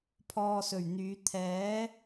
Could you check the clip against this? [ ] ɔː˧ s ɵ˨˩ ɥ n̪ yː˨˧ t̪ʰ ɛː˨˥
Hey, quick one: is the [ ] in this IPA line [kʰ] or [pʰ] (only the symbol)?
pʰ